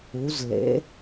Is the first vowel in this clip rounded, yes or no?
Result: yes